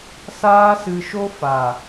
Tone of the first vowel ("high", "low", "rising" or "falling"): high